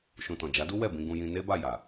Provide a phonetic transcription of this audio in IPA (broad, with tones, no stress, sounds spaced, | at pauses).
ʃ ũ˨ t ɔ̃˨ d͡ʒ a˨˦ d u˦ w ɛ˦˨ b ĩ˧ ɡ ũ˧ j ĩ˧ n e˦ b a˦˨ j a˨